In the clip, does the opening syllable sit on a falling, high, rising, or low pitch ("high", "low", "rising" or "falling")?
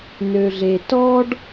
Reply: low